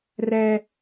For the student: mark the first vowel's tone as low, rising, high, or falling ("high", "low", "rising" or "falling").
high